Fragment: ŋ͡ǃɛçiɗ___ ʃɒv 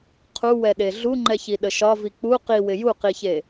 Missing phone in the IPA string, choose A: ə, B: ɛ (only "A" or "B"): A